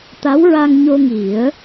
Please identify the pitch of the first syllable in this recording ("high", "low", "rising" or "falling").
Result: rising